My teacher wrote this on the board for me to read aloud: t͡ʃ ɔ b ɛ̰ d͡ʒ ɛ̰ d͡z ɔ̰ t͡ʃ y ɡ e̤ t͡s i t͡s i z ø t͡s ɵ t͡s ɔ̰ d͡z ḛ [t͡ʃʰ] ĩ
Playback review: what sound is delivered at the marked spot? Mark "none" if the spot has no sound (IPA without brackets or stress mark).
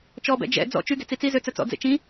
t͡ʃ